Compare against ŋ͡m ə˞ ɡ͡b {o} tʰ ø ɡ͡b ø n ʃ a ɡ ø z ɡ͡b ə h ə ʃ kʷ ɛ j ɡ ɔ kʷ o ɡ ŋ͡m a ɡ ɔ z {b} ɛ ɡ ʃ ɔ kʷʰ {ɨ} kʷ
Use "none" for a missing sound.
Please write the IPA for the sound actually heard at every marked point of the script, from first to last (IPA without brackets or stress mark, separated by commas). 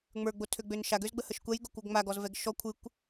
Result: o, v, ɨ